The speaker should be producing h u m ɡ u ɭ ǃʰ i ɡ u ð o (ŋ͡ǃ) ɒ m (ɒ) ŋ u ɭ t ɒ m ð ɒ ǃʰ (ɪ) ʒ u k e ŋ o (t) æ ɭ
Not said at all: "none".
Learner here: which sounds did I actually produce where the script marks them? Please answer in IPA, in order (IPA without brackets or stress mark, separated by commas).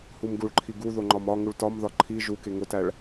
ŋ͡ǃ, ɒ, i, t